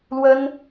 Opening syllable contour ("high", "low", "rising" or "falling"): high